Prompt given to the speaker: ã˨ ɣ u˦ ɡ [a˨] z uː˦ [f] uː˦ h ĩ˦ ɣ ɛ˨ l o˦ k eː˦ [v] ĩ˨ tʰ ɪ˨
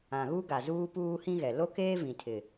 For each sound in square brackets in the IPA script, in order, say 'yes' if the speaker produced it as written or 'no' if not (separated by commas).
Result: yes, no, yes